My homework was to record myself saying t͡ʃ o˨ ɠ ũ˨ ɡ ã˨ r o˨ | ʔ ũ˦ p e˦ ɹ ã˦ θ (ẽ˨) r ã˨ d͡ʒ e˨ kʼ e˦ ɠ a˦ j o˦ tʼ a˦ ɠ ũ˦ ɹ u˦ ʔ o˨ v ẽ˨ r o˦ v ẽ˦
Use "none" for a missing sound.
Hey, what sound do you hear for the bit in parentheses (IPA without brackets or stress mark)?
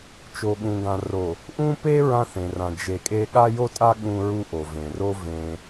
ẽ˨